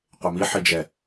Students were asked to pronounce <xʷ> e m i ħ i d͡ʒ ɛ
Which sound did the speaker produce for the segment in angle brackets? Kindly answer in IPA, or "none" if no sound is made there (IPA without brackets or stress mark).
qʷ